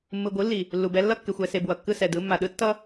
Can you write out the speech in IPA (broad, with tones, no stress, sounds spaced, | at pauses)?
mː ɯ˨ ɡʷ ɯ˨˦ lː i˨ | lː u˨ b ɛ˦ lː ʌ˦ kː e˨ xʷ ɛ˨ s e˨ b w ʌ˨ kː ɯ˦ s ɛ˨ d ɯ˨˦ mː a˨ ɗ ɯ˦ tː ʌ˦